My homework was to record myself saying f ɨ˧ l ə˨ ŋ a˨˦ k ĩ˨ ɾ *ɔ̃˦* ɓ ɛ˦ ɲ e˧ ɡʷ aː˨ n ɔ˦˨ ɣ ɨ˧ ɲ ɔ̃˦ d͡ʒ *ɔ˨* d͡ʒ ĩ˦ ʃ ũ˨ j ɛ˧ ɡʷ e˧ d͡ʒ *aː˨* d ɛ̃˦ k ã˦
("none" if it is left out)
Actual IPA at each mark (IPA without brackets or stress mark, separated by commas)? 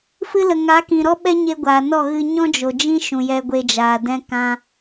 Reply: ɔ˦, o˨, aː˨